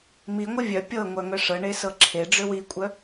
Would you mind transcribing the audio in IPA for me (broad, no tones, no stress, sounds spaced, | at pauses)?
m i ŋʷ ə vʲ œ pʲ ɤ ŋʷ œ ŋ œ ʂ ɤ ɳ e s ɤ ǁʰ e ɖ͡ʐ ʏ w i kʷʼ œ